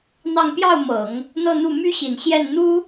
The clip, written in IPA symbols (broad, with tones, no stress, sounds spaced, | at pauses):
n̪ ɑ˥˧ ŋ p j ɑ˥˩ ʊ̯ m ɤ˨˩˦ ŋ | n̪ ɤ˥˧ n̪ u˥˩ m y˥ ɕ i˨˩ n ɕ j ɛ˥˩ n n̪ u˥